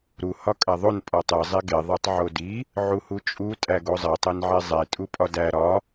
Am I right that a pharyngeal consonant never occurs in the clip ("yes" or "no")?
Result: no